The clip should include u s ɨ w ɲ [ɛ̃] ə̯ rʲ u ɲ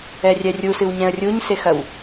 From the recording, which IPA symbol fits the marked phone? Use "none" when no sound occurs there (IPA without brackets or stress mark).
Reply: ɛ̃